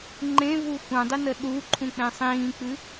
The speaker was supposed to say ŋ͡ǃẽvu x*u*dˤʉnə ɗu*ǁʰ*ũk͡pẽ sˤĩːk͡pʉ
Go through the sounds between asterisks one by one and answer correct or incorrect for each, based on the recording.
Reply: incorrect: ũ, incorrect: ǃʰ

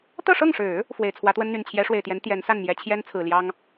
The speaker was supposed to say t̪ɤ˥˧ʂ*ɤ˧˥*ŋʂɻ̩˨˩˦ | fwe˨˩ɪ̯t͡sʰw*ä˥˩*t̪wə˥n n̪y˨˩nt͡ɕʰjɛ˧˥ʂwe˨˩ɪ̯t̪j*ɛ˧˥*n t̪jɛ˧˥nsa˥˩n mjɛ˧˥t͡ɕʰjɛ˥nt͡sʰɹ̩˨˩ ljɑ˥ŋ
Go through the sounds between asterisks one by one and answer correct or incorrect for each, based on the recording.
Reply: incorrect: ɤ˥˩, incorrect: ä˧˥, correct

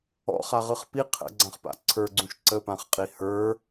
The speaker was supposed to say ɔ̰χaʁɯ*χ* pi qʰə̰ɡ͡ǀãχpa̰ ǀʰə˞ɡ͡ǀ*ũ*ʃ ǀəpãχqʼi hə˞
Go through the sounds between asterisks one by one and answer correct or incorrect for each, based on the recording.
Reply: correct, correct

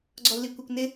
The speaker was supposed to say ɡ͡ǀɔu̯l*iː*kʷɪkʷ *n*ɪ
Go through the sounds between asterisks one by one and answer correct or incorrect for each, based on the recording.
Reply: incorrect: i, correct

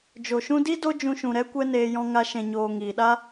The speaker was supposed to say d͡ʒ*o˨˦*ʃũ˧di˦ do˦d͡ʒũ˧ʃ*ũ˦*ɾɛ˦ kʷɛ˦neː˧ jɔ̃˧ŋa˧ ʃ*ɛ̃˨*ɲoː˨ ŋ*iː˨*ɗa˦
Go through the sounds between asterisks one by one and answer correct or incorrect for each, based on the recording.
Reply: incorrect: o˨, incorrect: ũ˨, correct, correct

